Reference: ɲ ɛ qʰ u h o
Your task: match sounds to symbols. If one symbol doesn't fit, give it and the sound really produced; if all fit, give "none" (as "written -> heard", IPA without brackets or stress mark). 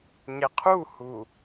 o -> u